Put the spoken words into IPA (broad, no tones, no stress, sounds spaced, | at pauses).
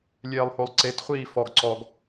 lʲ eː lˠ h o lˠ ǀ e t χʷ iː f ɔ ɡ ǀ ɔ ɡ